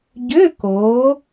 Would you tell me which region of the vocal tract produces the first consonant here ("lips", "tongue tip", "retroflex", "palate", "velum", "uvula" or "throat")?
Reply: palate